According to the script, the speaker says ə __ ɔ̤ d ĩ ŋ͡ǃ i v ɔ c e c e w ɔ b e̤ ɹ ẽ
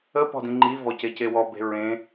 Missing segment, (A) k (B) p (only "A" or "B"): B